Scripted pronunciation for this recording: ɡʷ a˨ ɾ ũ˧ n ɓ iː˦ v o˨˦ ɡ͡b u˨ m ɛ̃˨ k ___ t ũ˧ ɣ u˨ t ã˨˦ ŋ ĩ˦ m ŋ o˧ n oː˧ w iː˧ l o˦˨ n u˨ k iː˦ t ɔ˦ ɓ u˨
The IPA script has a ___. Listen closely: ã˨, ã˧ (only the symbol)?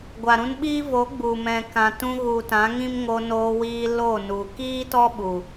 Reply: ã˨